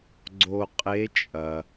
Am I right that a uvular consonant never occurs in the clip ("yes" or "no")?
no